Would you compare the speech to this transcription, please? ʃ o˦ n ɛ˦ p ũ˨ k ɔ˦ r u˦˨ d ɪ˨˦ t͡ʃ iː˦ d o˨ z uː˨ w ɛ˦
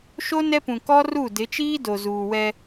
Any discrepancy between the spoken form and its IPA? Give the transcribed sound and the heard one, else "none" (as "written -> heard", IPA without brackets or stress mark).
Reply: none